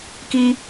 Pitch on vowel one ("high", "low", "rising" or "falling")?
high